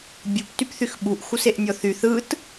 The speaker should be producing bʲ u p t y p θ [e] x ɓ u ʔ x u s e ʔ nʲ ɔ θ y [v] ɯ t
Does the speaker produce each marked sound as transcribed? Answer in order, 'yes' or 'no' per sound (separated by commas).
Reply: no, no